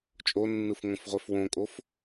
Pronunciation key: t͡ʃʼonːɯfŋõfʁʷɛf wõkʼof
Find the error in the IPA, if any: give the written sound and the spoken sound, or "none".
none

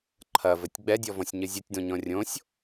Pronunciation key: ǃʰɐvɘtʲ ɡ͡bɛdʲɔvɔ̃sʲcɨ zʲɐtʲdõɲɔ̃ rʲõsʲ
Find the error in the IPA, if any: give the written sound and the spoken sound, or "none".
c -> ɲ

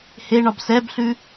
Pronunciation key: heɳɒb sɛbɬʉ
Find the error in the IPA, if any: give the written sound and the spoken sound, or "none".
none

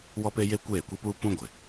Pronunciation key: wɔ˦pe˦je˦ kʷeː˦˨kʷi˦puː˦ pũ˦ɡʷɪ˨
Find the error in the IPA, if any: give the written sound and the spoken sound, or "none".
none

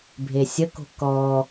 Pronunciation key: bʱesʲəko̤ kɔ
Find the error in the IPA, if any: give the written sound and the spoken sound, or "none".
none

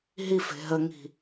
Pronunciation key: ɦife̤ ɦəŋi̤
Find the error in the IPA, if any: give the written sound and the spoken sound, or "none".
none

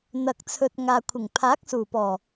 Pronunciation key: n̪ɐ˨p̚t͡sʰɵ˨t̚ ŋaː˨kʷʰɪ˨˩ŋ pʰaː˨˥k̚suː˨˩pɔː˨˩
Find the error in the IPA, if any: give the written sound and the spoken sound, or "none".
p̚ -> k̚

